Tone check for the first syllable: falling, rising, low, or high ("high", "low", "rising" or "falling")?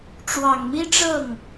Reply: low